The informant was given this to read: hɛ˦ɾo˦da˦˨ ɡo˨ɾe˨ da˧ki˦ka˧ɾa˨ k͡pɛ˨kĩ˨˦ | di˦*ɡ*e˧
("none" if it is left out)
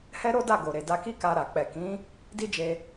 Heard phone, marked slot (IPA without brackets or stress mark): d͡ʒ